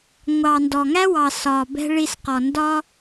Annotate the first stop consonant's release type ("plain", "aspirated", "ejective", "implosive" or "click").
plain